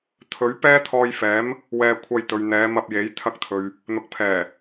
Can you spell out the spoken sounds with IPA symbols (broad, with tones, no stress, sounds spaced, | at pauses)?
t̪ʰ ɵ˨˥ ɥ p ɛː˥ t̪ʰ ɔː˧ j f ɛː˨˥ m | w ɛː˧ kʷʰ ɐ˧ j t̪ ɵ˨ ɥ n̪ ɛː˨˧ m ɐ˧ p̚ j e˨˥ j t̪ʰ ɐ˧ k̚ t̪ʰ ɵ˨ ɥ | n̪ ʊ˨˥ k̚ pʰ ɛː˨˩